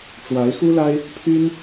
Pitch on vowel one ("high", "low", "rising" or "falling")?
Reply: rising